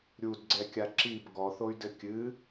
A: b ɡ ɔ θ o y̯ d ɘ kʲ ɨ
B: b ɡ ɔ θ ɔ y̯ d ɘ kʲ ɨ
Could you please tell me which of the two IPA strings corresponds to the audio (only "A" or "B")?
A